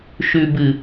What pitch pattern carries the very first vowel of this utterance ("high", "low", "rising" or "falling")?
low